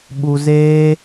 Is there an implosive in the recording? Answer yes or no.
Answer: yes